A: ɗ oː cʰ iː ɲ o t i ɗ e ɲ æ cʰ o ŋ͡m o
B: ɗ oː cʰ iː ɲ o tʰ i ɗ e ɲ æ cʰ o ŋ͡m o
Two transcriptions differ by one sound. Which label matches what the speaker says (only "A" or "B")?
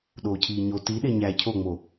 A